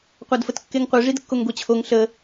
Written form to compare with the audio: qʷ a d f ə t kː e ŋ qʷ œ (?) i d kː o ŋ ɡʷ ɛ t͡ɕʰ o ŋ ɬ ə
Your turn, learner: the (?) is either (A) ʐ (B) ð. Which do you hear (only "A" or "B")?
A